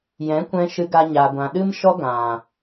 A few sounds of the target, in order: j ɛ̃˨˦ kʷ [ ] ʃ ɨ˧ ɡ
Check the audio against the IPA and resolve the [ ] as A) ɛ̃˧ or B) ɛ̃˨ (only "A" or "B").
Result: A